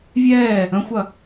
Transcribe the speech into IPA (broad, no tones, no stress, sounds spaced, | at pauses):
vʲ ɛː | ə̃ xʷ ɐ